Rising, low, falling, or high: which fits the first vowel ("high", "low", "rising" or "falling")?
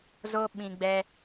high